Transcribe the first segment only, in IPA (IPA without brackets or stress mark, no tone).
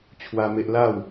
t͡ɕʰ